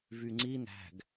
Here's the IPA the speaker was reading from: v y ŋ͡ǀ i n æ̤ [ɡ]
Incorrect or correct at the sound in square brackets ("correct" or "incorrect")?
correct